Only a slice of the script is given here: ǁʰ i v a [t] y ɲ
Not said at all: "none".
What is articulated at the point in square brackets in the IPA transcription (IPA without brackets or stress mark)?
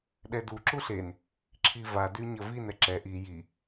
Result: d